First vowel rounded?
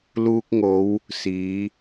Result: yes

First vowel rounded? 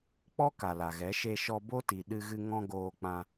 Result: yes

